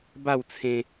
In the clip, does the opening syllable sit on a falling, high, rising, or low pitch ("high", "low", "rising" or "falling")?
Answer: falling